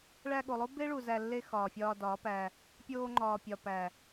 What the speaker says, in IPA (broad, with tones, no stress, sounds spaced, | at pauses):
ɭ æ˧ ɠ o˨ lˠ o˦ b e˦ ɭ u˨ z æ˧ lː e˧ x ɒː˨ fʲ ɒː˧ d ɒː˨˦ p æ˧ | pʲ oː˧ ŋ͡ǃ ɒː˨ pʲ ɒ˨ p æ˨